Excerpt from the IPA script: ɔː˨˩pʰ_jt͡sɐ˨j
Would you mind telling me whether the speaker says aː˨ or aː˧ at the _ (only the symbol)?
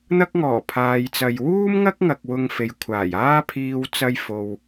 aː˨